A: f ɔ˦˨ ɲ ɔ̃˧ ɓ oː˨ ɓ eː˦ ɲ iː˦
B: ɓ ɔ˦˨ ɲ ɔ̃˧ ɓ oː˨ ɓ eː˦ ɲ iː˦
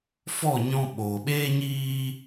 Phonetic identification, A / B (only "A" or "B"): A